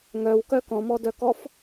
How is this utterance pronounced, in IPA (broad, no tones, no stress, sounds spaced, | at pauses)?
ŋ œ w k œ k ɔ̃ m ɔ d œ k ɔ f